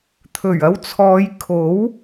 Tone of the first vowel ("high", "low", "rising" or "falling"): low